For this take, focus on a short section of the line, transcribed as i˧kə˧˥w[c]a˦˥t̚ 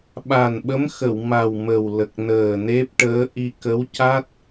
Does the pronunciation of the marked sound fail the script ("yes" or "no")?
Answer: no